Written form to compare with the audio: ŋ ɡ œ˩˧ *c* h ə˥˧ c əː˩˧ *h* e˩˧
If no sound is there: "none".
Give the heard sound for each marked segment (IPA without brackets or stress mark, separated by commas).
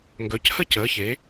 c, ç